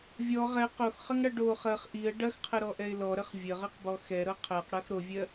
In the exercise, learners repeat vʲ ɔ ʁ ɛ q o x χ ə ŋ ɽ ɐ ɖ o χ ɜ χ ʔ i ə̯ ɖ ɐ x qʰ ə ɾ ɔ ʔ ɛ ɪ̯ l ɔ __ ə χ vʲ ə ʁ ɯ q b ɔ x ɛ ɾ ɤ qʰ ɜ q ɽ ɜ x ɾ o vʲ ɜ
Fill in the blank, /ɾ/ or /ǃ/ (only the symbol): ɾ